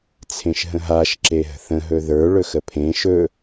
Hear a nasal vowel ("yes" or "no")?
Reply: yes